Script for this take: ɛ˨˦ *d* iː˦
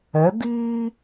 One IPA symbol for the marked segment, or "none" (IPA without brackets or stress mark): d